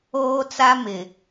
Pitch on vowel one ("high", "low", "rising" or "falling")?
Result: high